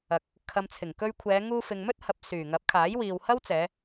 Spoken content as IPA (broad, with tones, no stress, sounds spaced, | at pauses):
ɐ˨ k̚ | kʰ ɐ˨ m t͡sʰ ɪ˨˩ ŋ k ɵ˧ ɥ kʷʰ ɛː˨˧ ŋ uː˧ f ɪ˨ ŋ m ɵ˥ t̚ h ɐ˨ p̚ s yː˨˩ ŋ ɐ˨˥ p̚ kʰ aː˨˥ j w iː˨ w h ɐ˥ w t͡s ɛː˨˧